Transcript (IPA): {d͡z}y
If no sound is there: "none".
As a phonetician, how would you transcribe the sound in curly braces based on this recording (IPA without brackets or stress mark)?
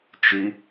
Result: t͡ʃ